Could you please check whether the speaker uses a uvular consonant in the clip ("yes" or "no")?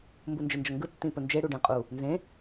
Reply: yes